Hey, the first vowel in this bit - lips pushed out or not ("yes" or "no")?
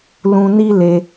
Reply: yes